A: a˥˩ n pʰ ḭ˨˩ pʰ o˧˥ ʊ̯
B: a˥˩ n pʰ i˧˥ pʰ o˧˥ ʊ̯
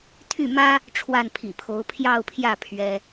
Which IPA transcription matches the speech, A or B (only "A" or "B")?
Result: A